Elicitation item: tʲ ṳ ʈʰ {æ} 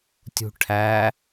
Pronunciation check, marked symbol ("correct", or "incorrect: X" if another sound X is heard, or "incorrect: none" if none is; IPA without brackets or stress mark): correct